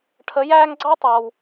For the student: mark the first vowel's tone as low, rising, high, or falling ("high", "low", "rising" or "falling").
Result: rising